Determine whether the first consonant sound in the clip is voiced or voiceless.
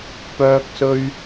voiceless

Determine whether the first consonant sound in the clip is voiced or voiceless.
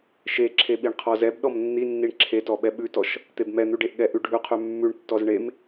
voiceless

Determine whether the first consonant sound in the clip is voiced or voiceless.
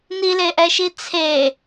voiced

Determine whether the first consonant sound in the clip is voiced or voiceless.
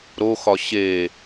voiced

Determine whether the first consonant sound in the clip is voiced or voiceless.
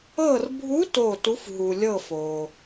voiced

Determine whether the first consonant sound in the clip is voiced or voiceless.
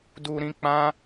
voiced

